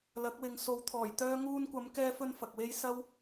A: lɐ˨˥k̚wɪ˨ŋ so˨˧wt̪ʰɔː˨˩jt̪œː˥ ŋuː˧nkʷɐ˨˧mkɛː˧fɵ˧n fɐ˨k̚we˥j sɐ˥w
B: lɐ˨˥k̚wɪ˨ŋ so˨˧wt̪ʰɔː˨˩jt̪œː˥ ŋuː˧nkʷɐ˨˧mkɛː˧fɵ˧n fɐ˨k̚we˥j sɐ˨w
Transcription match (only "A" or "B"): A